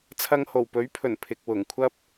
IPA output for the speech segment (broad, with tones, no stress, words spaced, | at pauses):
t͡sʰɐ˧ŋho˨˩wpɵ˨˥ɥpʰɵ˨˩n pʰɪ˨k̚ wʊ˨˩ŋkʷʰɐ˥p̚